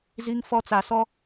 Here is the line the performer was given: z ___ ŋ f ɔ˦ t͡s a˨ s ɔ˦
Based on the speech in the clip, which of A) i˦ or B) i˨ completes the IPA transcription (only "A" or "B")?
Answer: A